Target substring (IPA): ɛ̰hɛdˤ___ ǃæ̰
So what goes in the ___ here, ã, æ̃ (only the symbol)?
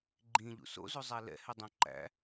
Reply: æ̃